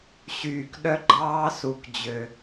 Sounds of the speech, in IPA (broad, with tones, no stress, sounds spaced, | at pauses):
ɕ yː˨ k ɗ œ˧ ɡ͡ǃ ɑː˧ s u˨ k d͡ʑ ø˨